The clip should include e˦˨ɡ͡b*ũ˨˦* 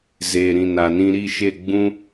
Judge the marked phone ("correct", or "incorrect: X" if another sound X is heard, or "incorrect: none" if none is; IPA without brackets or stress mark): incorrect: ũ˦